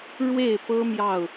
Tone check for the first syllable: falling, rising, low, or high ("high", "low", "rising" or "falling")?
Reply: falling